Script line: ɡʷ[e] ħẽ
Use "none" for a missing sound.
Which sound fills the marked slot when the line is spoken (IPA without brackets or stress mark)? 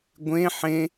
ẽ